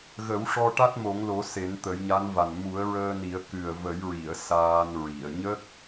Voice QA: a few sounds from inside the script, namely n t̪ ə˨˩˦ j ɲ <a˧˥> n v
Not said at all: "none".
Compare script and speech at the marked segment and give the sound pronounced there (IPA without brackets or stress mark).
a˧˥